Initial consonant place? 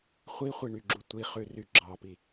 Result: uvular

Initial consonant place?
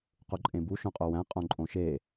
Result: uvular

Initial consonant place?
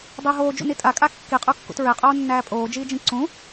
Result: alveolar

